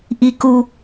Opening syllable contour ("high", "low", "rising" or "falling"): high